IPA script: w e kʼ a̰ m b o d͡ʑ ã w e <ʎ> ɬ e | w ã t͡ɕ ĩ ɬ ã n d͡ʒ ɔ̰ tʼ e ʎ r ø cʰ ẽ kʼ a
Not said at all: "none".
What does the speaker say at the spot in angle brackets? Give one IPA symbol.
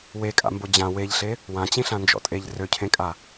ʎ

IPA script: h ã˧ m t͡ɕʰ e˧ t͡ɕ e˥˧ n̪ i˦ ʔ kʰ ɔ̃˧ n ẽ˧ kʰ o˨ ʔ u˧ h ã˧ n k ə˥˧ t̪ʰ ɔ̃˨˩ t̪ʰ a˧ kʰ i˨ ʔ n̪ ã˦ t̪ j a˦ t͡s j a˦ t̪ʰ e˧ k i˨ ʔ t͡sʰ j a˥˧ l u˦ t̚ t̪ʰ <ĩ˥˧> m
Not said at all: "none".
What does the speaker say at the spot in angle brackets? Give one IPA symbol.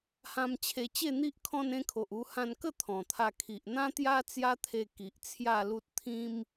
ĩ˦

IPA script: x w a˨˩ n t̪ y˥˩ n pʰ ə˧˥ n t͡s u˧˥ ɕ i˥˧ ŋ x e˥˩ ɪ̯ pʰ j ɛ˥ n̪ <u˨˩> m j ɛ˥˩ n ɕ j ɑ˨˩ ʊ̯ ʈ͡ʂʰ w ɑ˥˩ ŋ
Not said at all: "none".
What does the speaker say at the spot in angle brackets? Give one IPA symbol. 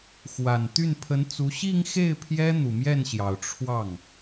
u˨˩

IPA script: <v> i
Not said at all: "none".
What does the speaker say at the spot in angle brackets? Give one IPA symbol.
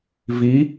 v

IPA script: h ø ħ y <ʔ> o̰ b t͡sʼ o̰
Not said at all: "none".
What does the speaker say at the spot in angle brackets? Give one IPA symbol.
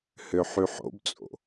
ħ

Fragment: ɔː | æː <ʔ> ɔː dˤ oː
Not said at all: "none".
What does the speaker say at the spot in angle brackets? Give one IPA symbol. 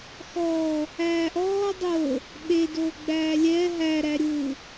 ʔ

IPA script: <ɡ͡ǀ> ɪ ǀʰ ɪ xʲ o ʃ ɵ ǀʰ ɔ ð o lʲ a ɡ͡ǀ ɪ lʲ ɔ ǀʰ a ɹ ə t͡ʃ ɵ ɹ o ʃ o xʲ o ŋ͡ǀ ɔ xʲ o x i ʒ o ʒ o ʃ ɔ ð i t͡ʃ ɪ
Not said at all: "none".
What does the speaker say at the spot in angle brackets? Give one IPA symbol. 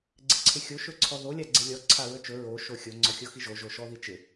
ɡ͡ǀ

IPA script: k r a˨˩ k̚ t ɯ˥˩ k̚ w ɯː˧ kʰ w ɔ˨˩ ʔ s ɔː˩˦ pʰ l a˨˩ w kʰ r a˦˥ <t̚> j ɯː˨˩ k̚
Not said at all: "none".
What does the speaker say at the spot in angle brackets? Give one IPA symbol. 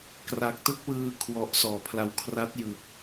t̚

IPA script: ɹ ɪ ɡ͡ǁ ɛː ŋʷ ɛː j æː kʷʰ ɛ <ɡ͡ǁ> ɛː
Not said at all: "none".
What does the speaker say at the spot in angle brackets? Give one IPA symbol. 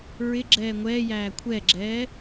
ɡ͡ǁ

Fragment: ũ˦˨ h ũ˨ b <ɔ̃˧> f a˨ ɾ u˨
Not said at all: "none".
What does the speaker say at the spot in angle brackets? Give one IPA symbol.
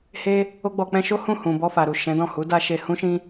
ɔ˧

